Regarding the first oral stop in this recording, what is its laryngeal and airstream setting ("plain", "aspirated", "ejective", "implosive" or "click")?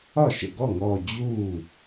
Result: plain